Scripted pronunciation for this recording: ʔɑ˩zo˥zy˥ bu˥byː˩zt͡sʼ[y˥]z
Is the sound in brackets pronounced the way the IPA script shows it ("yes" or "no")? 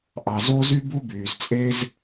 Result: no